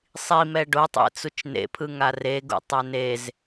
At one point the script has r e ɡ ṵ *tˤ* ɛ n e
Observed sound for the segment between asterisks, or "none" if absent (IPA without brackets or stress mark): tˤ